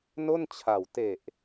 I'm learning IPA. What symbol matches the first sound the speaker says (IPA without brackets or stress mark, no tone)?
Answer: n